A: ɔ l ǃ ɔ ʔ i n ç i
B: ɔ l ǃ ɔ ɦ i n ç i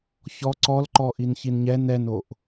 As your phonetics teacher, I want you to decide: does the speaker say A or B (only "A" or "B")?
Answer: A